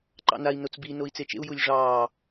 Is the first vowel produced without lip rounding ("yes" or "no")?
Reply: yes